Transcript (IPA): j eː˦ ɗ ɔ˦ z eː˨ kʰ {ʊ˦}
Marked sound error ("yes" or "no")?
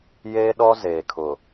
yes